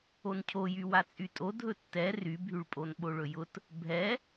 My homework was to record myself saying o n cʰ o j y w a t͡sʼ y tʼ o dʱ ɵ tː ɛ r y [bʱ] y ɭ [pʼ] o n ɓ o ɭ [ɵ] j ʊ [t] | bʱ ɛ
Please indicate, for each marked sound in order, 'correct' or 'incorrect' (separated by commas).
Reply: correct, correct, correct, correct